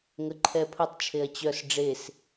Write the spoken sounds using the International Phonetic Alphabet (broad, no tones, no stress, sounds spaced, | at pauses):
ŋ ə ǃʰ ɛ pʰ ə tˤ t͡ʃʰ e ɐ̯ t͡ɕ œ s ɖ͡ʐ e s